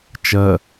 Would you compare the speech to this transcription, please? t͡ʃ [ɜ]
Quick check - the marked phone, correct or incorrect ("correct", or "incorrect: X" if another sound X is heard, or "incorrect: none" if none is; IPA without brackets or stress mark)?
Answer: correct